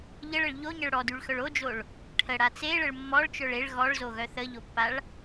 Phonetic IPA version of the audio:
ʎ ə ɭ ə ɭ ʎ o ɲ ə ɭ ɽ ɔ d y ɭ x œ ɭ o d͡ʒ o ɭ | ʈʰ ə ɽ a t͡s e ɭ ə ɭ mː ɔ ɭ t͡ʃ œ ɭ e ɭ ɣ ɔ ɭ z o ɣ œ θ ə ʎ o pː a ɭ

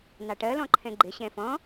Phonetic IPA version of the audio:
n ɑ ʈ ɜ l ɔ̃ ǃʰ ɛ̃ ɡ͡ǃ ɪ ɕ ɛ̃ f ɔ̃

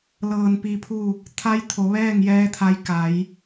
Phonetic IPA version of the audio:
l ɤː˧˩ n p i˧ pʰ u˥˨ | t̪ʰ a˧˥ j t̪ʰ o˩˧ ʋ ɛː˥˨ ŋ j ɛː˧˥ t̪ʰ a˧ j k a˩˧ j

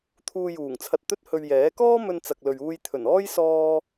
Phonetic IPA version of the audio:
t̪ʰ uː˧ j uː˨˩ ŋ t͡sʰ ɐ˧ t̚ t̪ ɵ˥ t̚ h ɵ˧ ɥ j ɛː˨˥ k ɔː˥ m ɵ˧ n t͡s ɐ˨ k̚ l ɵ˨ ɥ uː˧ j t̪ʰ ɵ˨˩ n ɔː˥ j s ɔː˧

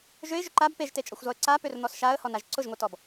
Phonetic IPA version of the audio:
ʒ ø ɪ̯ ʒ ʏ ǃ a b p e ʒ t e t͡ʃʼ ɔ xʷ z ɔ ə̯ ǀ a p ø r n̪ ɔ s ʃ a ə̯ h ɔ n a ʒ ǀ ʊ ʒ ŋʷ e t ɔ b

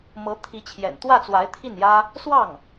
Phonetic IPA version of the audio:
m ɤ˧˥ t̪ʰ i˧˥ t͡ɕʰ j ɛ̰˨˩ n t̪ w ä˥˩ t͡s w a˧˥ ɪ̯ t̪ʰ i˥˩ n j ä˥ | s w ɑ˥˩ ŋ

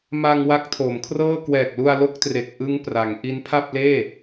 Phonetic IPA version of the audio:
m a˧ ŋ w a˦˥ k̚ tʰ o˩˦ m kʰ r ɤː˥˩ k w ɛː˨˩ k̚ l u˧ a̯ l o˦˥ k̚ t r e˨˩ k̚ ʔ ɯ˦˥ ŋ p r a˩˦ ŋ ʔ i˦˥ n pʰ a˥˩ p̚ l eː˥˩

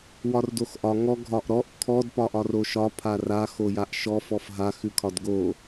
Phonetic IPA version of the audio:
w ɒ r d o x ʔ ɒ ŋ ɔ ɡʱ ɒ ʔ ɾ ɔ ʔ kʰ ɔ d p ɒ ʔ ɒ r o ʃ ɒ pʰ a r a x o j a ʔ ʃ ɔ f ɔ f ɦ a x ʉ kʰ ɒ d ɡ o

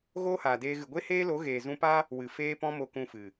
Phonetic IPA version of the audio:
ɣ oː˦ h aː˨ d eː˧ ɣ ɨ˨ ɡʷ e˦ h eː˦ l o˨˦ ɣ eː˨ z ũ˧ p a˦ | w ɨ˨ f eː˧ p ɔ̃˧ m o˨ k ũ˨ f ɨ˨

